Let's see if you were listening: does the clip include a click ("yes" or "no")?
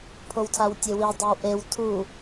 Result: no